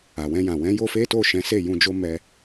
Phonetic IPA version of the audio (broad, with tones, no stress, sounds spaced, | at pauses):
a˨ w ɛ̃˧ j ã˨ w ɛ̃˨˦ j o˦ f e˦ t o˦˨ ʃ ɛ̃˨˦ s e˦˨ j ũ˧ d͡ʒ o˦ m ɛ˧